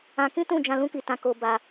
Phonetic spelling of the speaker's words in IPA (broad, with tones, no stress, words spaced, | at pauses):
ã˧kĩ˦tũ˦˨d͡ʒã˧ lũ˦ki˧tã˧ ko˧ba˧